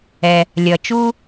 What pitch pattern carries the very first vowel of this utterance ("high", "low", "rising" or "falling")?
low